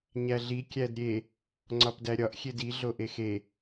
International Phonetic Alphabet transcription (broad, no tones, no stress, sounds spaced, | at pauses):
ɲ æ ɮ i kʲ æ d ɾʲ e | ŋ͡ǀ ɒ p d æ ɾʲ ɒ ʔ xʲ e d i ɮ o ʔ e x e